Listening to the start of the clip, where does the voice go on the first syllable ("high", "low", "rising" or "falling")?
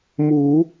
rising